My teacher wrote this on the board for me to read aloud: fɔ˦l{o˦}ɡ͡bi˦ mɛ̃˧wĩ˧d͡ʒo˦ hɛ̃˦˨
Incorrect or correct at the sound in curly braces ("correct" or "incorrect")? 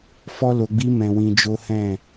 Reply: incorrect